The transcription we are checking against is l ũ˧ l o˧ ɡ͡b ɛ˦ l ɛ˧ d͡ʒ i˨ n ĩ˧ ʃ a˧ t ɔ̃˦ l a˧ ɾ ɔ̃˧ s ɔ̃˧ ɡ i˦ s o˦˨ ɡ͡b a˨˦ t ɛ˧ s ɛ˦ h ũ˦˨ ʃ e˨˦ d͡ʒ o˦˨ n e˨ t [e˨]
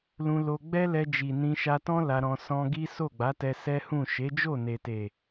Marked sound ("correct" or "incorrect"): correct